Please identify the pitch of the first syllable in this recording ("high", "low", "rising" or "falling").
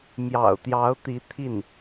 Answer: low